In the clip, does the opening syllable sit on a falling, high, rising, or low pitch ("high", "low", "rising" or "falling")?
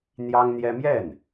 high